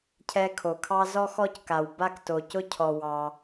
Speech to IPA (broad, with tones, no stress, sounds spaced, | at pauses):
cʰ ɛ˦ kʰ o˨ kʰ ɑ˥ z ɔ˦ x ɔ˦ c k a˩ w b a˦ k t o˩ c ʊ˦ cʰ ɔ˩ w ɑ˨